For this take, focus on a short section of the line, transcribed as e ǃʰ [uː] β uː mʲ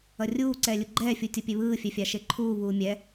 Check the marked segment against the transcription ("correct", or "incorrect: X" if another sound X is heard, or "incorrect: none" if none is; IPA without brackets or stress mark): correct